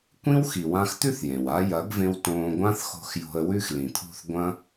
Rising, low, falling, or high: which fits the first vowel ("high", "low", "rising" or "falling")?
high